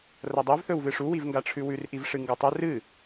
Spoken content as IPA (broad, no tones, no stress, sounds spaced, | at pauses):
r ɐ dˤ ɵ v θ ɵ w v ɨ ʂ u w i v ŋ ɡ a ʈ͡ʂʰ ʉ w ʉ r ʔ i v ʂ ɨ ŋ ɡ o tˤ ɵ r ɨ